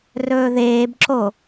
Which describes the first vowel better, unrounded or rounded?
rounded